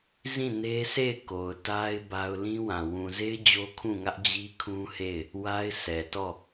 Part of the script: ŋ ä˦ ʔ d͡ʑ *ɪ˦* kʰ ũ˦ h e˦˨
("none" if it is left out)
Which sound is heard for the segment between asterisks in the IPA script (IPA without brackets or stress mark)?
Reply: i˦